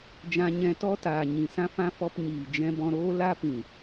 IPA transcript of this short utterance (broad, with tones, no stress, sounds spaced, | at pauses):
d͡ʒ ã˧ ɲ ɛ̃˧ t ɔ˦ t aː˨ ɲ ĩ˨ s ã˧ f ã˧ f ɔ˧ p ɲ iː˨ d͡ʒ ɛ̃˧ b ɔ̃˧ ɾ oː˦ l a˦ p ĩ˨